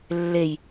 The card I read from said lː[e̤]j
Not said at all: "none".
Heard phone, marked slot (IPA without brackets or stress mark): e